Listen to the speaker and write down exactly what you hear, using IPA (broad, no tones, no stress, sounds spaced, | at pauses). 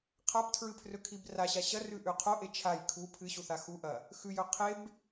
qʰ a p tʰ ɹ ɨ pʰ r ɵ kʰ i b r a ɕ a ɕ ɐ r ʉ ʔ ʉ qʰ o ʔ e t͡ʃʰ a j kʰ u pʰ ɨ ɕ u θ a x u ʔ ɐ | x ʉ j ɵ qʰ e b